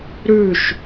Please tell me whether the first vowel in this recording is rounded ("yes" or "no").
yes